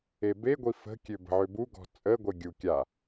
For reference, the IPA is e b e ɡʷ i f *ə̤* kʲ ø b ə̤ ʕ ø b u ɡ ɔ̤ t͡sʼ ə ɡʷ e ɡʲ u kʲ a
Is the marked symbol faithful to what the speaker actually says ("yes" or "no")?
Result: yes